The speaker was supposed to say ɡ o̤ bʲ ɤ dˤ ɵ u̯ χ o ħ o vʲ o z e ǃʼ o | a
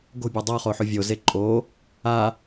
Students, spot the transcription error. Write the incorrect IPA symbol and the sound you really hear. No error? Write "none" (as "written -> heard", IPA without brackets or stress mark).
ɵ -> ɤ